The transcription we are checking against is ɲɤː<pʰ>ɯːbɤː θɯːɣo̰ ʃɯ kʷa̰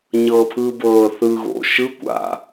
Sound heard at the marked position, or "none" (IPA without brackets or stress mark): pʰ